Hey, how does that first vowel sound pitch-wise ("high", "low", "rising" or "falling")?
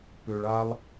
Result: low